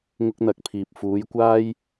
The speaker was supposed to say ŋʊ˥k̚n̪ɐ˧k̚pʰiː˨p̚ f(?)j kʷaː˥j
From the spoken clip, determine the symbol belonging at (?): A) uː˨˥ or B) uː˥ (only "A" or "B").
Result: A